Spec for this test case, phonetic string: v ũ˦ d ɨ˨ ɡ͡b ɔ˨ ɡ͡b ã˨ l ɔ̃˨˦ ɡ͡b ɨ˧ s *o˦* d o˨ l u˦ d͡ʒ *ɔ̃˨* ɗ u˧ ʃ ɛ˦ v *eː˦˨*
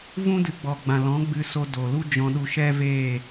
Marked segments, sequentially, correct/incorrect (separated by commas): incorrect, incorrect, correct